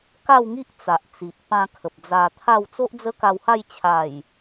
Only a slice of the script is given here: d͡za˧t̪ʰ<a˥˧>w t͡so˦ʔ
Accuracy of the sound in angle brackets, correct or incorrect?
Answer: correct